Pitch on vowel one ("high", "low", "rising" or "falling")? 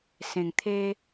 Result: low